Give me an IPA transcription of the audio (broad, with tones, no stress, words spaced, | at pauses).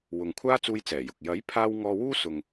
wʊ˨ŋkʷʰaː˥ t͡suː˧jt͡sɛː˨˩ jʊ˨k̚ jɐ˨˥j pʰaː˥w ŋɔː˧wuː˥sʊ˨ŋ